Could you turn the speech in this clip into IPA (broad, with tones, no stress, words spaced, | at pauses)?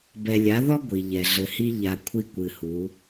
bɛ˨lʲa˨˦ðɔ˦ ɡʷi˨ʎɛ˨ ɮɘ˨hi˦ ʎa˨ kʷʰi˦kʷɨ˨hu˨˦